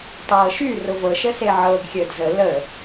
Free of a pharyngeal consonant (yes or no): no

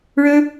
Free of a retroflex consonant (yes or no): no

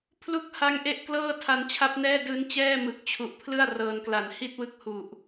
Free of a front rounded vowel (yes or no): yes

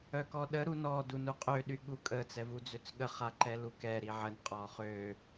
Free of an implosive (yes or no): no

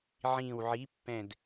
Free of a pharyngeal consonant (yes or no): no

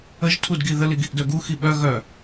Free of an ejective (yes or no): yes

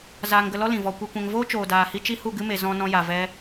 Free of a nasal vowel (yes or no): no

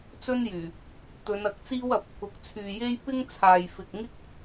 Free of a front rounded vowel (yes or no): no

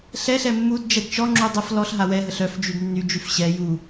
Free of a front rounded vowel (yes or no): no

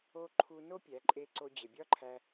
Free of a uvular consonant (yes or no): yes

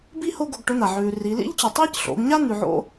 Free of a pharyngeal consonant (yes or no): no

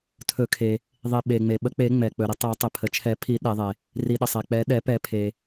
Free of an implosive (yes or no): no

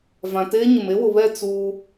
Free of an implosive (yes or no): yes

